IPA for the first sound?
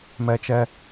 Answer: m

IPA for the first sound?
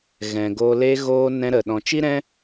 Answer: ɣ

